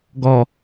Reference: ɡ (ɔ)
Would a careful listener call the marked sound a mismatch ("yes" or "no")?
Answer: no